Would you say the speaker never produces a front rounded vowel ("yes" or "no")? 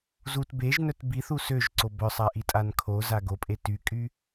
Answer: no